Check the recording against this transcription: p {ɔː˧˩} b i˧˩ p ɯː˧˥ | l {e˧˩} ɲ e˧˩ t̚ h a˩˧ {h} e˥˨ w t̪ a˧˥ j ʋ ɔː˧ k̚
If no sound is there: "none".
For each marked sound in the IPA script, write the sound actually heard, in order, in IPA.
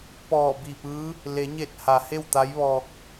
ɔː˧˩, e˩˧, h

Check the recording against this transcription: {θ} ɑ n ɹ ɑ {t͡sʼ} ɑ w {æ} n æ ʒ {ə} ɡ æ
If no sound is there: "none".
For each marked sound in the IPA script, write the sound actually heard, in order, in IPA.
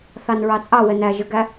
θ, t͡sʼ, ɛ, ə

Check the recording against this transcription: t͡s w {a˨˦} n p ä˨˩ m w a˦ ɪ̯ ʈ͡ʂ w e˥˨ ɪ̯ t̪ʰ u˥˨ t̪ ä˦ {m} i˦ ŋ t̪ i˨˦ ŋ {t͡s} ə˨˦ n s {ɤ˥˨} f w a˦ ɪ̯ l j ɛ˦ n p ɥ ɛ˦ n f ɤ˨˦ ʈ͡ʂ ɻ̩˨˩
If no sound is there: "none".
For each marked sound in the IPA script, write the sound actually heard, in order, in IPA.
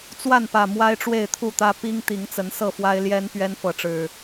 a˥˨, p, t͡s, ɤ˥˨

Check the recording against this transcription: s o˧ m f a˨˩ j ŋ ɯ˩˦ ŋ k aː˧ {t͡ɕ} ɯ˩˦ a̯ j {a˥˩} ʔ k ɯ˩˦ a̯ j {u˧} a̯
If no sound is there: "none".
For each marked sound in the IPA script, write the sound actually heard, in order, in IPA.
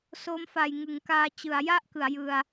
t͡ɕ, a˥˩, ɯ˧

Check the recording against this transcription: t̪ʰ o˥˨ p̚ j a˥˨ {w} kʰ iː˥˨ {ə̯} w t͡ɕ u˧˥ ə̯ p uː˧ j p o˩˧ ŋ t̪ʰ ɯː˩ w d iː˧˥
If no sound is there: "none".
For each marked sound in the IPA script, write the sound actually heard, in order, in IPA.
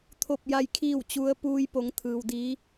j, none

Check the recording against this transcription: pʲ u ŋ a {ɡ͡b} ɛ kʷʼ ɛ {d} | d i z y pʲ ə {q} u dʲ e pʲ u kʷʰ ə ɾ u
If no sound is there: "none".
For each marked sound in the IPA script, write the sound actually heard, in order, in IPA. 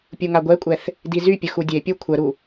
ɡʷ, θ, x

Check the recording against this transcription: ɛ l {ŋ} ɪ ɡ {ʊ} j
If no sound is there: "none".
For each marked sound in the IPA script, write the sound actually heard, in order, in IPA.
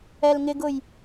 ŋ, ʊ

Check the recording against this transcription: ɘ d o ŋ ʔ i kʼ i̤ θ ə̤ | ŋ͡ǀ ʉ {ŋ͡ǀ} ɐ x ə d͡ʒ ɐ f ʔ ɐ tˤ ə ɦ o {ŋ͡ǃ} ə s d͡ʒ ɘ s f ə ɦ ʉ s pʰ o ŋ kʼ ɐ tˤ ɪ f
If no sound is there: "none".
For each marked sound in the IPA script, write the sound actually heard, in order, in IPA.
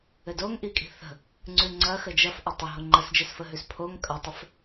ŋ͡ǀ, ŋ͡ǃ

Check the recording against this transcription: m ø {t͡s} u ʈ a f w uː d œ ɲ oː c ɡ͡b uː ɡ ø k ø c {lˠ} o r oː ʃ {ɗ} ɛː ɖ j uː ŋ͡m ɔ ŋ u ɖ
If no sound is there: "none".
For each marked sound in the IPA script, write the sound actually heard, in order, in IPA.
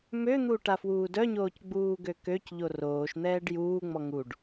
n̪, ʎ, n̪

